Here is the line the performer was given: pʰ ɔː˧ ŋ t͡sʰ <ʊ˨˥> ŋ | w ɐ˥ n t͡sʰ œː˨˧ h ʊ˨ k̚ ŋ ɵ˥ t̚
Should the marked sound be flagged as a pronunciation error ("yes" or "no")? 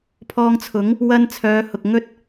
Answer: no